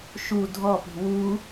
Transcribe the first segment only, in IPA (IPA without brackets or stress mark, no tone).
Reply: ʃ